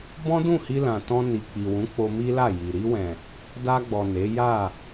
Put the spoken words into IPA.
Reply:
b ɔ̃˦ d ũ˦˨ h i˧ l ã˨ t ɔ̃˧ n i˨ k͡p i˨ w ũ˨˦ k͡p o˧ m i˦ l a˦˨ j i˨ ɾ i˧ w ɛ̃˨ | d a˧ ɡ͡b ɔ˨ n e˨˦ j a˦˨

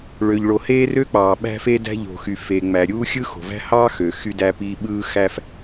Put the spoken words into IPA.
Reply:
ɭ ø˩ ʎ ɭ o˩ h eː˥ r ø˥ k͡p ɑː˩ ɓ æ̤˥ f e˥ d æ̤˥ ʎ o̤˩ x y˩ f e˩ ŋ͡m æ˩ ɾʲ uː˥ xʲ ɯ˥ x o̤˩ v æ̤˥ h ɑ˥ x ø˩ x y˥ d æ˥ p iː˥ ɓ ɯː˥ x æ˥ f

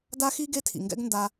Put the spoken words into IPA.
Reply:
d a˦ x i˦ ɡ e˦ tʰ ḭ˨ ŋ ɡ ɛ̰˦ ɡ n d a˧

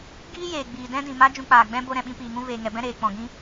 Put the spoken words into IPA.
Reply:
ɡ iː˦ j eː˨ ɡ͡b iː˨ d ɛ̃˦ d ĩ˨ m a˦ d͡ʒ ũ˧ k͡p aː˨ ɡ͡b ɛ̃˦ b o˧ ɾ ɛ̃˨ ɓ ĩ˧ p iː˨ ŋ ũ˦ v eː˨ ŋ ɛ˨ b ɛ̃˦ ɾ eː˨ k͡p ɔ̃˨ ɡ ĩ˦

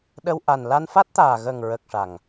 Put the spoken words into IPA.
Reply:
ɗ ə˧ w ʔ a˨˩ n l a˧ n f a˦˥ t̚ t̪ aː˨˩ ɣ ə˨˩ ŋ ɹ ə˨˩ k̚ ʂ a˨˩ ŋ

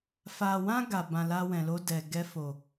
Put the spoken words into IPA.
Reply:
f a˨ w ã˧ ɡ a˨ b ã˨ l a˧ w ɛ̃˨ l o˧ d ɛ˨ ɡ ɛ˧ f o˨

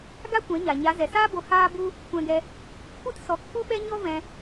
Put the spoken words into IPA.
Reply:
ɡ a˦ kʷ ɛ̃˨˦ ɲ a˨ ɲ a˨˦ z ɛ˨ s aː˦ b o˧ h aː˦ b u˦ | kʷ ɛ̃˧ ɡ ɛ˧ | kʷ ɨ˦ t s ɔ˨˦ k f u˦ ɓ ɛ˦ ɲ ɔ˦ v ɛ̃˧

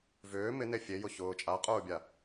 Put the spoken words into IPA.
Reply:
v ʏː m ɪ n e fʲ e j ʊ ç ʊː t͡ʃʼ a qʼ ʊː bʲ a

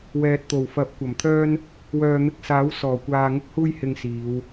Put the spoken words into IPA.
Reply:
w ɛː˨ t̚ t̪ o˨˩ w f ɐ˨˥ p̚ kʷ ɐ˨˩ m t̪ʰ œː˥ n | w œː˨ n̪ ɪ˧ k̚ s aː˨˥ w s ɔː˨˩ kʷ aː˨ ŋ ʊ˥ k̚ h uː˥ j h ɪ˧ ŋ s iː˨˧ w

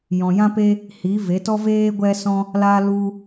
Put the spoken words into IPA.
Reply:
j ɔ̃˨ j ã˦ p e˦ | h i˨˦ v e˨˦ t ɔ˦ v eː˦ ɡʷ ɛ˦ s ɔ̃˦ | l a˧ l u˧

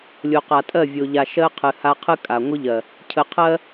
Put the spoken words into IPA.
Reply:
lʲ o˨ q a˨ tʼ ɜ˦˨ vʲ o˨ ʎ a˨ ʃ ɜ˦ qʰ ɨ˨ h a˦ qʰ ɨ˦ kʼ a˨ ŋʷ ɨ˦ ʎ ɜ˨ | cʰ ə˨ qʰ ɜ˦

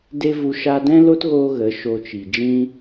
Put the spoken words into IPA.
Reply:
d e˦ v u˧ ʃ a˧ d ɛ̃˦ l o˦ t ɣ oː˧ ɣ ə˨˦ ʃ o˧ t͡ʃ i˨ d͡ʒ ĩ˧

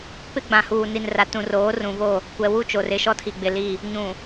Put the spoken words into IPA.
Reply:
p ɪ˦ ɡ͡b ã˨ h uː˨ n i˨ n r a˨ t ũ˨ r oː˨˦ r ũ˨ v o˦˨ | kʷ ɛ˨ w u˦ t͡ʃ o˨ r ɪ˦˨ ʃ ɔ˦ tʰ i˨ ɡ͡b ɪ˨ l i˦˨ | ɲ ũ˨

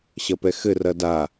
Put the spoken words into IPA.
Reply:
ɕ ɐ p ɛ x ɘ r ɐ d a

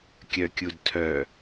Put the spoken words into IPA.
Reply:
kʲ œ kʲ u d tʰ œ

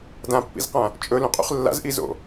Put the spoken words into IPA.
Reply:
d ã pː ḭ z q ã | t͡ʃʼ ɵ l ũ qʼ ṵ χ lː a̰ z ʔ i z o̰

